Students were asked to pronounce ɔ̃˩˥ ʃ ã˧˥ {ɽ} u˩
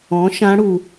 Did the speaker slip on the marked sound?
no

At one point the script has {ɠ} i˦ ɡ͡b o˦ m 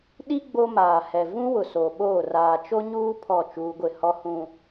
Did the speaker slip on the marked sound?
yes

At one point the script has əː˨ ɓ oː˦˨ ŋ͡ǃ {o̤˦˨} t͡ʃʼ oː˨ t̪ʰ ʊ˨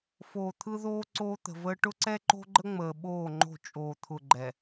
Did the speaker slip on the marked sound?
no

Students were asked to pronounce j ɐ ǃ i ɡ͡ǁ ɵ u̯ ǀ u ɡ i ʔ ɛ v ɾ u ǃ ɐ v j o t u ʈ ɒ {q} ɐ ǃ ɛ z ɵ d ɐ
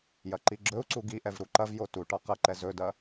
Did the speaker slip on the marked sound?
no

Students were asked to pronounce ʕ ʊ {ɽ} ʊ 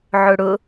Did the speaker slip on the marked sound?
no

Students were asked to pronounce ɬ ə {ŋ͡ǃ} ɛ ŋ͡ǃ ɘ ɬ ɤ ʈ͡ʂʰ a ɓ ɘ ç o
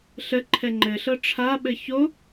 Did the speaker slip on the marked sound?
yes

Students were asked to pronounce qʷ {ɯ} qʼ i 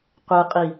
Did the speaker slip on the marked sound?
no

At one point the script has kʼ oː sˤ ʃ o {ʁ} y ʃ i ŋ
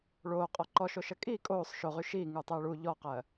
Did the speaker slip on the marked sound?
no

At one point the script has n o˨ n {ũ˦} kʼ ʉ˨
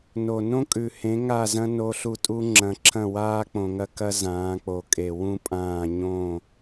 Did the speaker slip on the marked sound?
yes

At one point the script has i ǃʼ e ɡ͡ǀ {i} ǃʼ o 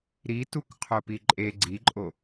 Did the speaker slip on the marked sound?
no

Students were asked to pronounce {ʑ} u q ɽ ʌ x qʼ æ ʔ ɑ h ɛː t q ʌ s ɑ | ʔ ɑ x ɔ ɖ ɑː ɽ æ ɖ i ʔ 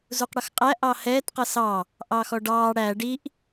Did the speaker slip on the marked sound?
yes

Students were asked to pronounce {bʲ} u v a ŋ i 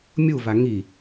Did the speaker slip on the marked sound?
yes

